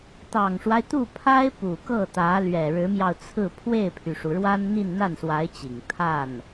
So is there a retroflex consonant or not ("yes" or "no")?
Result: yes